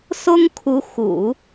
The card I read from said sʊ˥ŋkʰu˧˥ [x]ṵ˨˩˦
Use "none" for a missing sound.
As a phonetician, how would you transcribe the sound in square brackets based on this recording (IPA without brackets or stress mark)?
x